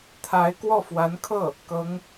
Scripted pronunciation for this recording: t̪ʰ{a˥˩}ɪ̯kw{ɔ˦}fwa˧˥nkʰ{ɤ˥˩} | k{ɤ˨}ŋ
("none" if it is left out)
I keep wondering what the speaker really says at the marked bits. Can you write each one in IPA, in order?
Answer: a˧˥, ɔ˥˩, ɤ˥˩, ɤ˧˥

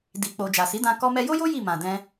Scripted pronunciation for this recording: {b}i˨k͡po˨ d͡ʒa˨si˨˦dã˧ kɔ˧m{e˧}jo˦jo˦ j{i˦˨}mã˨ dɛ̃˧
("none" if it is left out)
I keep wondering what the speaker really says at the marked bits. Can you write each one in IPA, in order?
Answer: d, ɛ˧, i˦˨

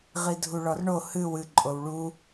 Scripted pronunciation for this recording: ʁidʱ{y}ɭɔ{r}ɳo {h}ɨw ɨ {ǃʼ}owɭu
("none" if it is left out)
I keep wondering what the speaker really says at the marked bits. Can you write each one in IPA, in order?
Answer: u, r, h, ǃʼ

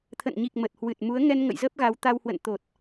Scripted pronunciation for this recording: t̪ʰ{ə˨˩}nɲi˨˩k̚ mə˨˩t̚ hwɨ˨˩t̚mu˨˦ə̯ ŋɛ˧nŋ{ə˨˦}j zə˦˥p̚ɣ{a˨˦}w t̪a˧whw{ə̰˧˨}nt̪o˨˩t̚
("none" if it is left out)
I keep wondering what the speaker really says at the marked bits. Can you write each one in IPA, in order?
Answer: ə̰˧˨, ə̰˧˨, a˨˦, ə̰˧˨

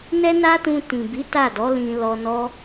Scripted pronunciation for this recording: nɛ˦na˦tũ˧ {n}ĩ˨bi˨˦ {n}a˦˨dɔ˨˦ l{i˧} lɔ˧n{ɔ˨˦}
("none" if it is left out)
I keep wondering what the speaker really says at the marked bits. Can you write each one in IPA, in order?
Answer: t, t, ĩ˧, ɔ˦

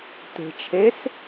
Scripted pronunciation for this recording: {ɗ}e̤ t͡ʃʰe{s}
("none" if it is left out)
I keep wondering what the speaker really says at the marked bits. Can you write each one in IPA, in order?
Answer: t̪, s

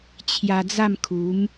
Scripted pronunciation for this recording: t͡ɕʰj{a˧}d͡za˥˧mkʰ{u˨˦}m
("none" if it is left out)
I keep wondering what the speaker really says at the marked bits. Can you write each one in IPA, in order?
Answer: a˧, u˨˦

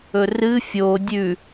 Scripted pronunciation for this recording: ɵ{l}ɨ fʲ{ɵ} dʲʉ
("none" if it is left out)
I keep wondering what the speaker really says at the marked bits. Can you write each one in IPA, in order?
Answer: r, o

